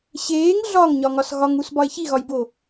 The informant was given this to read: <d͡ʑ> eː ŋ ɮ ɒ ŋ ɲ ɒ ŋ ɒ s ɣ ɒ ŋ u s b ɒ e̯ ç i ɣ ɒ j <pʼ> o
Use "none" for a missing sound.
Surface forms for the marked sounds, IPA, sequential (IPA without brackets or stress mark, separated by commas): ɕ, b